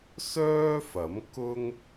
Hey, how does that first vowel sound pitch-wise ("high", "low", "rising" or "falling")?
high